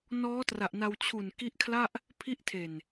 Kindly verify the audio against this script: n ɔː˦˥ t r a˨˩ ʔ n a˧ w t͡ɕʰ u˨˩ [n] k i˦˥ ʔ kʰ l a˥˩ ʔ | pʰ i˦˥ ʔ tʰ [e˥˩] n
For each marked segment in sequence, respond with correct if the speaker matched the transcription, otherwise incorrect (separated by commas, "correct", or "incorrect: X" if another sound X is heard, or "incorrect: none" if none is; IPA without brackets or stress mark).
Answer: correct, incorrect: e˨˩